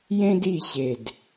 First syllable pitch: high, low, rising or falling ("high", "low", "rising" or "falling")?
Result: high